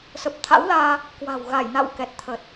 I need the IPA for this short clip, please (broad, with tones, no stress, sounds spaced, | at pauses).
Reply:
s ə˨˩ p̚ t̪ʰ a̰˧˥ w l aː˧ | k w a̤˨˩ w ɣ a˧˩ j n a̰˧˨ w k ɛ˨˩ t̚ t̪ʰ ə˨˩ t̚